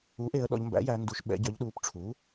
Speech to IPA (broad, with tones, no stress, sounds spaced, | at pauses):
u˩˥ ʔ e˩˧ ə̯ ɗ ɔ̰˩˧ ʎ m b æ̰˩˥ j æ˩˧ n d u˩˧ ʃ ɓ ɛ̰˩˧ ɟ œ˩˧ ʎ ɗ uː˩˧ p ʈ͡ʂʰ uː˩˥